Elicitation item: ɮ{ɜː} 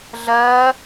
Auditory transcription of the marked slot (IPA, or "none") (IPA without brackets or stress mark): ɜː